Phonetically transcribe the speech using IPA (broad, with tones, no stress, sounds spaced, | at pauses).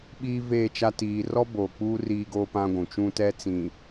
ɓ iː˦ v eː˦˨ t͡ʃ a˦ t iː˨ r ɔ˦ b o˨ k͡p uː˦ r iː˦ ɡ oː˦ p ã˦ ɡʷ ũ˨ t͡ʃ ũ˦ t ɛ˦ t͡s ĩ˨